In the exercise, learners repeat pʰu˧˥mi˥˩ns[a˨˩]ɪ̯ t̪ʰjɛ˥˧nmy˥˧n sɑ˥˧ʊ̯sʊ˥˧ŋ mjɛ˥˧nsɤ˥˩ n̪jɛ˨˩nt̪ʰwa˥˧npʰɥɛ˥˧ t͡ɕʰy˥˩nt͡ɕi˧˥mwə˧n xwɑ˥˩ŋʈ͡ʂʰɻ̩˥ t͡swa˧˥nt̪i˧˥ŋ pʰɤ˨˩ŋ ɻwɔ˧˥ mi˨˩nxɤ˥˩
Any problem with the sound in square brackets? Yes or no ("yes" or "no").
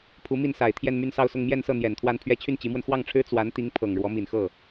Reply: no